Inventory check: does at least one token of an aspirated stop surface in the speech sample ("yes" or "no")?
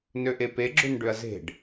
no